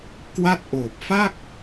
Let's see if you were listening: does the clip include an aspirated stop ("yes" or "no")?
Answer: no